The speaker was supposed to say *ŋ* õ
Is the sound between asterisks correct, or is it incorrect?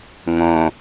correct